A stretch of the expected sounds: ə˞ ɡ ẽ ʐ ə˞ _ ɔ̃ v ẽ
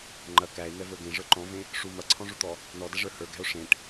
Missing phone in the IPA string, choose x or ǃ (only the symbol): ǃ